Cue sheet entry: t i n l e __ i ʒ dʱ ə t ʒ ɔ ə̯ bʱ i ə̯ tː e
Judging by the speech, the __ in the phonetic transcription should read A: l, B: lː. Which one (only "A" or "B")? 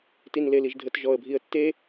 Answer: A